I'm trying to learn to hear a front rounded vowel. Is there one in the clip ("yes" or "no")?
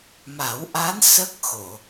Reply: no